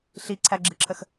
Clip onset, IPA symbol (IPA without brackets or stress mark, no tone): ɬ